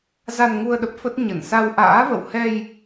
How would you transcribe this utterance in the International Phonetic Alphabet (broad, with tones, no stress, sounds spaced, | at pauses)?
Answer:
z a˧ n ŋ u˧ ə̯ ɗ ə˦˥ p̚ f ə˦˥ t̚ ɲ ə˧˩ n s a˧ w ʔ a̰ː˧˥ v ə̰˧˨ w h ɛ˧ j